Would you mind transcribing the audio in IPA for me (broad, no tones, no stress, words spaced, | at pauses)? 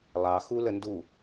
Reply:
lˠɑ xuləndu